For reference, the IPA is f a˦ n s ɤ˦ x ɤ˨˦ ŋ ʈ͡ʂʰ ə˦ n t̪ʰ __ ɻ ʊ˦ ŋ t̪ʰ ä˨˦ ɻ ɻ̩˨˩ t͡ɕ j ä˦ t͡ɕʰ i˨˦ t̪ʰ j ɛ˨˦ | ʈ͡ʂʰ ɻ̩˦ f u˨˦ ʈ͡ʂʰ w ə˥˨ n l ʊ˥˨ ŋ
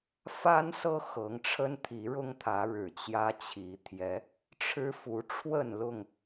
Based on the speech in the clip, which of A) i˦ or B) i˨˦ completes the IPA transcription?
B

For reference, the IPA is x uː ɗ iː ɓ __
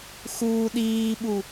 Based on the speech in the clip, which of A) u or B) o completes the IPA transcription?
A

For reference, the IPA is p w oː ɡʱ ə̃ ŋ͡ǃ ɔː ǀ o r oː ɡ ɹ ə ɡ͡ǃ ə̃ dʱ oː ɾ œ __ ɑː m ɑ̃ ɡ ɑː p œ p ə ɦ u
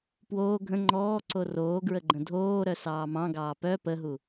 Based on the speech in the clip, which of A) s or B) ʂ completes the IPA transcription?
A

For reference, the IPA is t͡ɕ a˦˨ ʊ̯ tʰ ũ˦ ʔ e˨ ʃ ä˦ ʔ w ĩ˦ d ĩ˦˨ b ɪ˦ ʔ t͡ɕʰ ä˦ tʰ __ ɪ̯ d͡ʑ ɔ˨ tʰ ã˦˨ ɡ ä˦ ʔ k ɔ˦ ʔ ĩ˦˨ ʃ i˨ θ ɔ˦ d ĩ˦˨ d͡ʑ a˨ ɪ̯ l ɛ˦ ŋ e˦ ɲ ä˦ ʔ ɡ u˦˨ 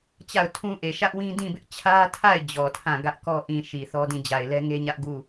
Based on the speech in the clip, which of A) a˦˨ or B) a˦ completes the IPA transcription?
A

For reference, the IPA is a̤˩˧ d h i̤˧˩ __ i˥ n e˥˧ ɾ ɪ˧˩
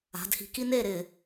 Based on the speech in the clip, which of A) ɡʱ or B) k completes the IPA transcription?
B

